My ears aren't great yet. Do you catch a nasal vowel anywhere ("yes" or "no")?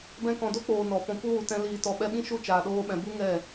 yes